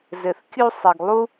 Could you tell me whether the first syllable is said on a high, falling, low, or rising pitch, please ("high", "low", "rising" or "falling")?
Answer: low